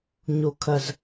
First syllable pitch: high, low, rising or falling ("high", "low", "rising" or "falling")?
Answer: low